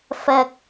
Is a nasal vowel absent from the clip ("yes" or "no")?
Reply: yes